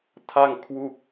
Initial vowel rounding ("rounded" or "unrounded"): unrounded